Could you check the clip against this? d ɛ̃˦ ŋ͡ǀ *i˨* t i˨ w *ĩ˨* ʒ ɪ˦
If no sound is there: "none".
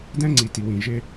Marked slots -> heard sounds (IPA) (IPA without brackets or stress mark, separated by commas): i˨, ĩ˨